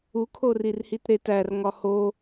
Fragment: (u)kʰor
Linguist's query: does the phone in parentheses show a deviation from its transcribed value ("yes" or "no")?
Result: no